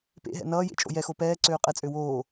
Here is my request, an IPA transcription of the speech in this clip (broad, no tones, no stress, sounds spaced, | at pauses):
p ḛ ɦ ɛ̰ n ʌː j ḛ t͡ʃʼ o̰ j ɛ x o p ɛː ǀ øː qʼ ɛ t͡sʼ ø w oː